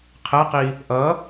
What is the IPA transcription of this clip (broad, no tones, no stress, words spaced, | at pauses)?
qʰɛqi | ʔʌ